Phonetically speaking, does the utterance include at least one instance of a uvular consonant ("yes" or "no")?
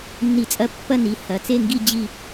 no